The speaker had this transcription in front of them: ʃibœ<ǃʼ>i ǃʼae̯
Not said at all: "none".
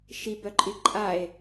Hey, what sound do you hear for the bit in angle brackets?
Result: ǃʼ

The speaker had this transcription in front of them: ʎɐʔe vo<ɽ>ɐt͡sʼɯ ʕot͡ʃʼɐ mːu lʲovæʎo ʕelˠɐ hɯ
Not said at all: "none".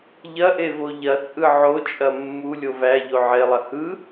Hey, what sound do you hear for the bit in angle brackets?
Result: ʎ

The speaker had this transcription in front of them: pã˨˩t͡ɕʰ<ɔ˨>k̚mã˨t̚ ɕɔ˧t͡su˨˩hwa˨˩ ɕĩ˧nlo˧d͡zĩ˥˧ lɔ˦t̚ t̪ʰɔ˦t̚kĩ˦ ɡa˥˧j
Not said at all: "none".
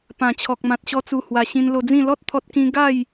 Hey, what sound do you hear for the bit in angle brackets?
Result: ɔ˨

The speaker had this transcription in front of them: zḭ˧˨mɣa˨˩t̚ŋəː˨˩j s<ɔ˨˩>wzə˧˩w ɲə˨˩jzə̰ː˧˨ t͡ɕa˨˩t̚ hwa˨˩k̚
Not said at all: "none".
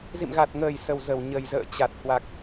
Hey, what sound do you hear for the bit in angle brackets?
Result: ə˨˩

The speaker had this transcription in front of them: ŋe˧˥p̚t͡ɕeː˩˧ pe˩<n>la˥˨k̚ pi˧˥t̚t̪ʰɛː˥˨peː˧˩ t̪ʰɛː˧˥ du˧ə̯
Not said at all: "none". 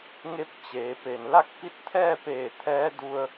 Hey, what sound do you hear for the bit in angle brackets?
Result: n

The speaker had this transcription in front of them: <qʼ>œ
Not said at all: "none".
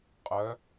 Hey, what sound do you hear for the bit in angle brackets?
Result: qʼ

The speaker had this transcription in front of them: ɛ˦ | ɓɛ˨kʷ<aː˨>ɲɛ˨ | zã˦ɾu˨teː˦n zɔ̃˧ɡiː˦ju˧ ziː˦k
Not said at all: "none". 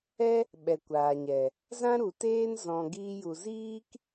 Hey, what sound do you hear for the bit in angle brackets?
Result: aː˨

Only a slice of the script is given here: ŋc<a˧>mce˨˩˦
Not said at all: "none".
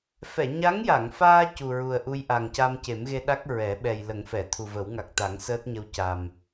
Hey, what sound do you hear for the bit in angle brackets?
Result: a˧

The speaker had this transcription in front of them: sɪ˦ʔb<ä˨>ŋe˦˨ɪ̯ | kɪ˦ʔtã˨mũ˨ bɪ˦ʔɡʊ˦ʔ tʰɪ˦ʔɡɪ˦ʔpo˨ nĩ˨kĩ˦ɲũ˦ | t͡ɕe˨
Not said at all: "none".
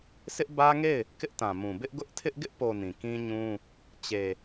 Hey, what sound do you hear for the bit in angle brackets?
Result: ä˦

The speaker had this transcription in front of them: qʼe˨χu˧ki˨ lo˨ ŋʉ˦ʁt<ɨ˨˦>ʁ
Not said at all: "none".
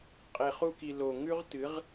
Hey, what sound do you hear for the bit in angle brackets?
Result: ɨ˨˦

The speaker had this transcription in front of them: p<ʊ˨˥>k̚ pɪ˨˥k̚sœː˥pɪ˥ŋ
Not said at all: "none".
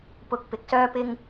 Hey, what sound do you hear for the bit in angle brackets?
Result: ʊ˨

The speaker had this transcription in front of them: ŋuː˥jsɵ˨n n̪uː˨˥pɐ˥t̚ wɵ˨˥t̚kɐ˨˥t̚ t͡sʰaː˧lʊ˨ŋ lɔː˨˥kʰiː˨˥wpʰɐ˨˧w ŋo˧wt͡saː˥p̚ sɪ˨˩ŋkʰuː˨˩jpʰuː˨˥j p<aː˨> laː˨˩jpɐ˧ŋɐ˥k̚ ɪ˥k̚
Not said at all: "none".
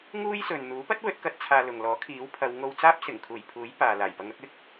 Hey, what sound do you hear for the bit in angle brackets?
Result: aː˨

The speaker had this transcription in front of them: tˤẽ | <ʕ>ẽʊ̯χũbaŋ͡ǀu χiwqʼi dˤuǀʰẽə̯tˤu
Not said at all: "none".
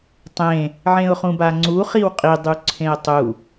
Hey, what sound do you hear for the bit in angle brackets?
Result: ʕ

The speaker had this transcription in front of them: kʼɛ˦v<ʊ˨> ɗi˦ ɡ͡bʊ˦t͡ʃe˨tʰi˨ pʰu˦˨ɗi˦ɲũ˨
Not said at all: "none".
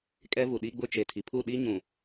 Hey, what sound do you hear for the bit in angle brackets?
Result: u˨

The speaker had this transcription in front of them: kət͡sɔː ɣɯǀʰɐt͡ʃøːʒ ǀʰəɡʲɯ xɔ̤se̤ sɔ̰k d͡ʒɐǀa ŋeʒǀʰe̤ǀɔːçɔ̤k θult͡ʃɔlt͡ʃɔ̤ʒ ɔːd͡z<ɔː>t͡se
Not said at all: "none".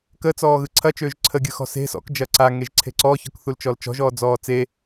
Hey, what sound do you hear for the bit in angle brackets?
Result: ɔː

